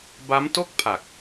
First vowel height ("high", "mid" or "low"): low